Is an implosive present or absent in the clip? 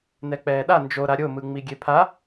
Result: present